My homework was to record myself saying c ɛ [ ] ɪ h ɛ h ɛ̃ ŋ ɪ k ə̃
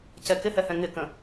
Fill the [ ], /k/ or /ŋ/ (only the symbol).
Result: k